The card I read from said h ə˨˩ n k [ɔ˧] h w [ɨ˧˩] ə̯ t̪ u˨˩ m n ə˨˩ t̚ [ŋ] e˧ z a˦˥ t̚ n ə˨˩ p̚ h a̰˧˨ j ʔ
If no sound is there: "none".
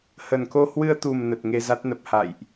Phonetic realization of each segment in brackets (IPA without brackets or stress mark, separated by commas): o˧, ɨ˧, ŋ